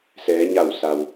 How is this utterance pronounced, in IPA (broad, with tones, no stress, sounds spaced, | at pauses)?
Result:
s ɛː˩˧ ɲ a˧˩ w s a˩ w